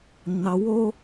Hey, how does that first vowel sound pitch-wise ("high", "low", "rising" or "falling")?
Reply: low